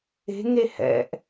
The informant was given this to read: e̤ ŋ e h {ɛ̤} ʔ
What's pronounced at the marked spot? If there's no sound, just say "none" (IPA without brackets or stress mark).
ɛ̰